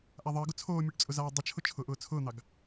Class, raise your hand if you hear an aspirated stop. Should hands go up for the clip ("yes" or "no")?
yes